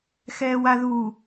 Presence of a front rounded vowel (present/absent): absent